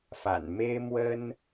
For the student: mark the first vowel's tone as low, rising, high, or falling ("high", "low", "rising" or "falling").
low